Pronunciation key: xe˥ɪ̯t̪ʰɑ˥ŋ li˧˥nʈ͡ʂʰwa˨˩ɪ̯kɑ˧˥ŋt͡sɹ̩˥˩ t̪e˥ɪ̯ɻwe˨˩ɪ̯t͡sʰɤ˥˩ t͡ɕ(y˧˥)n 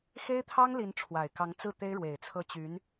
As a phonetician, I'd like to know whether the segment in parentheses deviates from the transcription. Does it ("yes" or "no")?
no